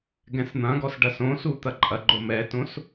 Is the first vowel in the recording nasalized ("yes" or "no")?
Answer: yes